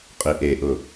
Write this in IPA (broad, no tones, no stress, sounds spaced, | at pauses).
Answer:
qʼ i ʔ e ʔ ʊ